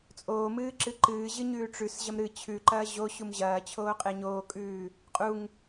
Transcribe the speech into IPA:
t͡sʼ oː m ɨː ǁ ɨ ǃ ɨː ʑ ɨ ɲ ʉː ʈ͡ʂ ʉ s ʑ ɐ m ɾ ɨ t͡ɕʰ ʉ ǃ ɐː ʑ o ɕ u m ʑ ɐː t͡ɕʰ oː qʼ e ɲ oː kʼ ʉː | qʼ u ŋ

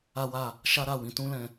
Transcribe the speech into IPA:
a˦ w a˦˨ | ʃ a˦ ɾ a˦˨ w ĩ˨˦ t ũ˦ l ɛ̃˧

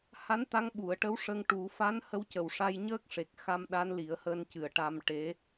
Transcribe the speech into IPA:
h a˧˥ n t̪ a˧˥ ŋ ɓ u˨˩˨ ə̯ ʈ ə˧˥ w ʂ ə˧ ŋ ʈ u˨˩˦ f a˧˥ n h ə˧˥ w c ə˨˩ w ʂ a˧ j ɲ əː˦˥ k̚ ʂ e˨˩ k̚ x a˧ m ɗ a˧˥ n l i˨˩˦ ə̯ h əː˧ n c ɨ˨˩˨ ə̯ ʈ a˧ m ʈ e˧˥

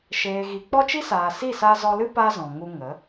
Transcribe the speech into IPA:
ʃ eː˨ ɣ i˨ k͡p ɔ˦ t͡ʃ i˦ s aː˨ s i˦˨ s a˧ z ɔ˧ l ɨ˦ p a˦ z ɔ̃˨ ŋ u˧ ŋ ə˨˦

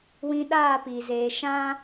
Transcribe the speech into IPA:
w ĩ˧ ɗ aː˦˨ p iː˨ z eː˧ ʃ ã˦

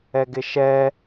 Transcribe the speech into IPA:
ɛ ɡ ɪ ʃ ɛ

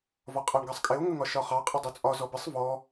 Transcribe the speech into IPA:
v ɒ qʼ ɑ ɳ ɡ ɑ sˤ kʼ ɪ o̯ ŋ ə ŋ ɒ ʃ ɒ χ ɑ qʼ ə dˤ u t͡sʼ ɒ z ɔ b ɪ sˤ v ɔ

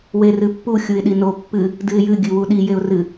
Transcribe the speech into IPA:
w e r ɨ pː u xʲ u ɪ̯ ɗ i n o pː ɨ | d ɨ ɪ̯ j ɨ ɡʲ ɨ w u ɗ i j e ʊ̯ r ɨ

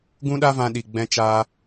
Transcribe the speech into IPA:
ɡ ũ˦ ɗ a˦ v ã˧ ɗ i˨ ɡ͡b ɛ̃˦ t͡ʃ aː˦

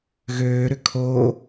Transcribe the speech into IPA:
ɣ øː ɾ ʏ kʰ oː

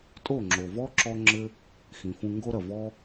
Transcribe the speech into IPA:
tʼ o˦˨ ŋ͡ǁ o˨ v ɔ˦ ǁ ɔ˦ ŋ͡ǁ ɘ˦ | x ĩ˨ f ũ˧ ŋ ɡ o˦ ɾ ɐ˨ v ɔ˦

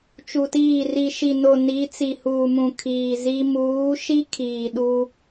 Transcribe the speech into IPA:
t͡ʃ u˨ t iː˦˨ r i˨ ʃ i˨ n o˨ n i˨˦ t͡s i˨ h uː˨ m ũ˨ kʰ iː˨ z i˦ m uː˨˦ ʃ i˦ kʰ iː˨ ɗ u˦

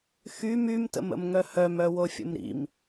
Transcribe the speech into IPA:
x y m y m t ə̰ m ə̰ m ŋ œ h œ m œ w o fʲ ə̰ m ɾ ḭ m

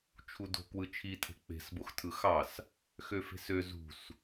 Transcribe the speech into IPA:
t͡ʃʰ u d o̤ k w ɯ t͡ʃʰ i tʰ e̤ k͡p e̤ s b o x tʰ ɯ x ɑ s | x ø f e̤ s ø z ṳ s

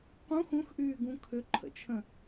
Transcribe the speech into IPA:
q ũ x ũ x ʔ yː ɡ ũ kʰ ʏ ǃʰ ə̰ t͡ʃʰ ə̃

